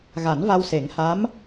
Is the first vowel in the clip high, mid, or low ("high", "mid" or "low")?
low